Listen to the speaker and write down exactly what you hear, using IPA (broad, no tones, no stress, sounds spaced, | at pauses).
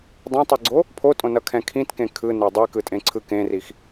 dˤ ɛ̃ tˤ i ɡ͡ǀ o | pʰ o tʼ õ n ʌ kʰ ɛ̃ kʰ ĩ t k ẽ kʰ ɯ n e dˤ i k ɯ tʼ ẽ ǀʰ ɯ k ẽ r i x